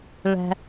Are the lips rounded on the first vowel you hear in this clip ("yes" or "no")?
no